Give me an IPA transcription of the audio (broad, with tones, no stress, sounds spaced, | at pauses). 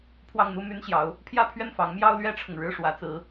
pʰ w ɑ˥˩ ŋ n̪ u˥ m y˥ n ɕ j ɑ˧˥ ʊ̯ | pʰ j ä˥˧ pʰ ɥ ɛ˥˩ n f ɑ˧˥ ŋ m j ɑ˥ ʊ̯ l ɥ ɛ˥ ʈ͡ʂʰ ʊ˨ ŋ ɻ ɻ̩˥˩ ʂ w ä˧˥ t͡s ɹ̩˧˥